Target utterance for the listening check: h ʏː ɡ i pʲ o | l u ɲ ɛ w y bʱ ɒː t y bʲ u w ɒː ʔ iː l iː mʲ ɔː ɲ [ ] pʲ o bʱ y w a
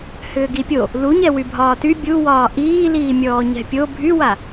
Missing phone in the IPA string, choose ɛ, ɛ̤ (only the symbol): ɛ̤